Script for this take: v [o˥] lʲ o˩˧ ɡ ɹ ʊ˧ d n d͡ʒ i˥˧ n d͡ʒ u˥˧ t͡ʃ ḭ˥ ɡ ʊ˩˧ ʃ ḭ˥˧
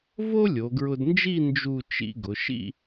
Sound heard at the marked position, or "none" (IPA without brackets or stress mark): o˥